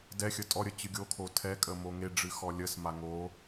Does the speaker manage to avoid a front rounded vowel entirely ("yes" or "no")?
yes